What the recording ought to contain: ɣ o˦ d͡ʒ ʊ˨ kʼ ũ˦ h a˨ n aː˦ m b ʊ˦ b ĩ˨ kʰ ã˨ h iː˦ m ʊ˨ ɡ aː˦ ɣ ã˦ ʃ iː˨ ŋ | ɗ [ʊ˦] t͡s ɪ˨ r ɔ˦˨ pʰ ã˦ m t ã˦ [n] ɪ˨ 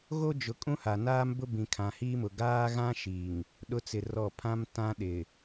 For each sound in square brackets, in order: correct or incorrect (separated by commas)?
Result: correct, incorrect